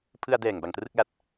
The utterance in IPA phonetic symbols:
pʰ ɯ˧ a̯ d ɛː˨˩ ŋ b a˨˩ ŋ t r ɯ˥˩ k̚ l a˦˥ t̚

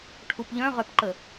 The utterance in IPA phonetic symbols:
ʈʰ u p ʎ œ̃ ʁ œ p ǃ ə

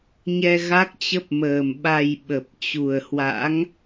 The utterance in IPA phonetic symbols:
ɲ ɛ˧ ɣ a˦˥ k̚ t͡ɕ ə˦˥ p̚ m əː˨˩ m ɓ a˨˩ j ɓ ə˨˩ p̚ t͡ɕ u˨˩ ə̯ h w a̰˧˥ ŋ

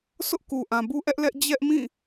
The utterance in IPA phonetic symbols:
sʰ ʊ˦ ʔ k u˨ ʔ ã˨ b u˦ ʔ ɛ˦ ʔ l ɛ˦ ʔ d͡ʑ ɛ˦ ʔ m ĩ˦˨

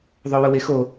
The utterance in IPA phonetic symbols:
ðˤ o w ʊ w e x o

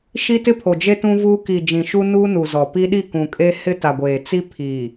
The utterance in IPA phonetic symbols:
ʃ i˦ t ɪ˦ pʰ o˨ d͡ʒ e˦ t ũ˦ v u˦ k i˨ d͡ʒ ĩ˨ ʃ u˦ n uː˦ n u˨ z ɔ˨ p i˦ ɗ i˦˨ k ũ˨ kʼ e˦ h ɪ˦ t a˨ ɡʷ eː˨ t͡s i˦ pʰ i˨

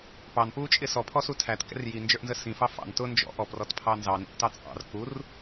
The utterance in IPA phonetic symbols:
p ɑ n p uː t͡ʃʼ ɪ s ɔ pʰ ɔ s u tʰ æ t k ɛ̰ r j i n d͡ʒ ə˞ ʔ n z ə s ĩ f ɑ f ɑ̰ n t ʊ n d͡ʒ ɔ̰ ʔ ɔ p r ɔ t pʰ ɑ n z ɑ n ḭ ʔ t ɑ t͡sʼ ɑ̰ r k u r

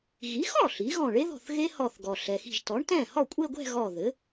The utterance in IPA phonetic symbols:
ɣ i˩˥ x ɔ˥˩ ɬ i˩˥ ɣ ɔ̃˧˩ ɭ e˦˥ ð ɔ̤˧˩ θ ɣ e˦˥ h ɔ˧˩ θ ɡ ɔ˩ ɬ ɛ˩ x i̤˧˩ ʒ t ɔ˩˥ ɳ t ɛ̃˥˩ h ɔ˥˩ kʷʼ e˥˧ ɡʷ ɛ̤˥˧ ɣ ɔ˧˩ ð ɘ˩˥

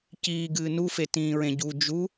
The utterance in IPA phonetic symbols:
c iː ɡ ɨː n u f e t ĩː ɹ ẽ ɟ u d͡ʒ u

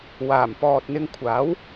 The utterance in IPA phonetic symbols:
w aː˨˩ m p ɔː˨ t̚ n̪ ɪ˧ ŋ kʷʰ aː˨˥ w

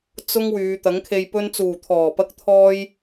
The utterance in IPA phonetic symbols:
t͡s ʊ˧ ŋ w yː˨˧ t̪ ɐ˨˥ ŋ kʰ e˨ j p ɵ˧ n t͡s uː˨˩ t̪ʰ ɔː˨˩ p ɐ˧ k̚ t̪ʰ ɔː˧ j

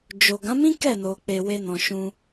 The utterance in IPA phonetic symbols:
d͡ʒ o˨ ɡ ã˨˦ m ĩ˦ k ɛ˦˨ n o˨ k͡p e˨ w e˧ n ɔ̃˨ ʃ ũ˧

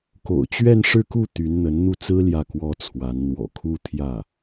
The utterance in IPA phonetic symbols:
k o̰˨˩ ʊ̯ t͡ɕ ɥ ɛ˥˧ n ʂ ɻ̩˥˧ k u˥˩ t̪ y˧˥ n n̪ ə˧˥ n n̪ u˥˩ t͡s ɹ̩˥ l j ä˥˩ k w ɔ˥ t͡sʰ w a˧˥ n n̪ w ɔ̰˨˩ kʰ u˥ t̪ʰ j ä˥˩

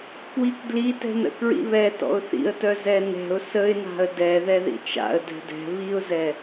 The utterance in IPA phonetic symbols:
k w i k d l i t ɛ̤ n ə̰ k ɹ ḭ β ɛ t ɔ̰ ʊ̯ θ ḭ ə̯ t œ z ɛ n ɛ̤ ʊ̯ s ə ɪ̯ n a̤ ə̯ d ɛ ð ɛ ð ḭ t͡ʃ a̰ ə̯ d ɛ̤ d ɛ̤ β i ʊ̯ z ɛ

